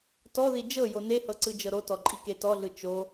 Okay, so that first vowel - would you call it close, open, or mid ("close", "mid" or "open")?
mid